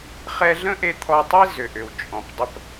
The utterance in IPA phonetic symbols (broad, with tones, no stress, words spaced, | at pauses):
χɛ˧ɮə̃˥ʔe˧ t̪ʰɔ˧tˤi˥ zʏ˩ʔʏ˩w t͡ʃʼɔ̃˩pdˤə˧p